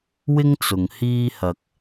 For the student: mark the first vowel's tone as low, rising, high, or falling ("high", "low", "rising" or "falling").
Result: high